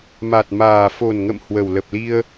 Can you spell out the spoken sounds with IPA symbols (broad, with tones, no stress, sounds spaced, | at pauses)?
m a˨˩ t̚ m aː˨˩ f o˨˩ n ŋ ə̰˧˨ m h w ə˨˩ w l ə˨˩ p̚ l i˧ ə̯